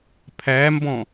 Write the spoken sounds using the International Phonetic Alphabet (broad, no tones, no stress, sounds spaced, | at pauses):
pʰ æ m b ɔ̃